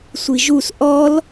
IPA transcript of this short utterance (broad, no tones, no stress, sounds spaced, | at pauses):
sʷ i ʒ u s ʔ ɔ l